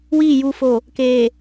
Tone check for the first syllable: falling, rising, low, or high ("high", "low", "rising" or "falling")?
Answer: falling